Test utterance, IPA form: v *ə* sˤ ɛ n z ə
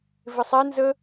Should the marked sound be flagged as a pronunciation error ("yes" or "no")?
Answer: yes